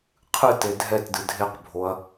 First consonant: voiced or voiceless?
voiceless